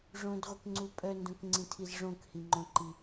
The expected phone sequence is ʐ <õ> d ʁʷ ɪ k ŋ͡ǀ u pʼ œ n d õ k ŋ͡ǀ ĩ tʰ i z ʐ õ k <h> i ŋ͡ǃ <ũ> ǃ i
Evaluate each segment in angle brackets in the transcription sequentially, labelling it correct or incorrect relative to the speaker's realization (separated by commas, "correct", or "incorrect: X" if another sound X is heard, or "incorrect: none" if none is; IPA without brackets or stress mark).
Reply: correct, correct, incorrect: õ